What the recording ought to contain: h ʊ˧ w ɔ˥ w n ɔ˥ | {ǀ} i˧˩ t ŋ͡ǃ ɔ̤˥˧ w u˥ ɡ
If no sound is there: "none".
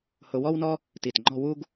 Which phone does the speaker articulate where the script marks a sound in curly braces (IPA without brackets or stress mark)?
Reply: t